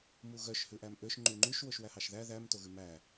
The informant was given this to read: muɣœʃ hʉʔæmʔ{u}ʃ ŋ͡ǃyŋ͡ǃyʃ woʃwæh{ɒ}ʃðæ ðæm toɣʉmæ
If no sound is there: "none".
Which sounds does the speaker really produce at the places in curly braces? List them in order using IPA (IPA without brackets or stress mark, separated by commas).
ø, ɑ